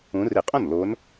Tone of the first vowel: rising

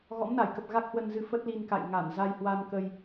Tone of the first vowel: rising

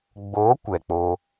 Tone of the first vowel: rising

